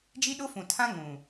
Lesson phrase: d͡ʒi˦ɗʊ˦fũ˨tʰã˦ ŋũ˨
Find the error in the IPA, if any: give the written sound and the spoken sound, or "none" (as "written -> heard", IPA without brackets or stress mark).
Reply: none